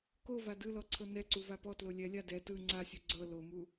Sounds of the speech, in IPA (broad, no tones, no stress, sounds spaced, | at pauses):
k o v a d ɯ l ɔ ǀʰ ɤ n ɛ ǀ u v a p ɔ t l o lʲ ɛ lʲ a d ɛ t ɯ ŋ͡ǀ a sʲ u ɡ͡ǀ ɤ l o m u